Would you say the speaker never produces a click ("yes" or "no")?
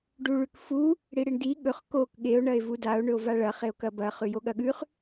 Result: yes